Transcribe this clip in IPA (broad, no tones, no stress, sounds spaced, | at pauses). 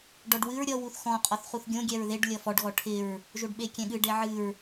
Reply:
ɖ ɔ ɖ w ɨ ɹ ɾʲ ʌ w u θ x ɔ̃ qʼ ɔ θ χ u θ ɡʲ õ ɡʲ ɛ ɹ ð e ɖ lʲ ʌ f ɔ ɖ ɣ ɔ ʈʰ ɪ ɹ | ʒ o ɖ ɓ e kʲ ɛ̃ ɠ ɨ ɖ e ʕ ɨ ɹ